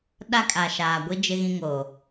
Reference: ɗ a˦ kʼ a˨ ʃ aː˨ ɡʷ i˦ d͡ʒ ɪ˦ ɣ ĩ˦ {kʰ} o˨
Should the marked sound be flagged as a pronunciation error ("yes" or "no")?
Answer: yes